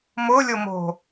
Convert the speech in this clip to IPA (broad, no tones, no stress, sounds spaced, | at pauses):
m ʊ lʲ ʊ m o̤